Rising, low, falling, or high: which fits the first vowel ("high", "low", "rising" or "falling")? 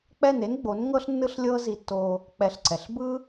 falling